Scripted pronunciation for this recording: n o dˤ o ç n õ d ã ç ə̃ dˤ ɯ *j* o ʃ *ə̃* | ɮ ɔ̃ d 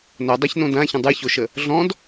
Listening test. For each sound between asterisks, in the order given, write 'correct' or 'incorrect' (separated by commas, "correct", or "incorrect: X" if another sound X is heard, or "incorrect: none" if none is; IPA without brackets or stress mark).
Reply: incorrect: ç, incorrect: ə